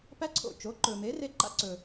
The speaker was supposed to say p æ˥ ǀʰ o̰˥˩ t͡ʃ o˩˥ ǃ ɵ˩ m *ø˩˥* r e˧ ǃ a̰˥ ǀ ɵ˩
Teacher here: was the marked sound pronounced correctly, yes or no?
no